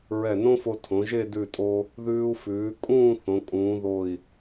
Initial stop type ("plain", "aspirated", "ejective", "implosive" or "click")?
aspirated